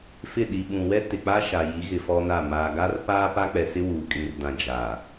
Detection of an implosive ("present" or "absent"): present